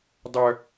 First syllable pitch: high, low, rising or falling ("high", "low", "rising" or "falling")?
low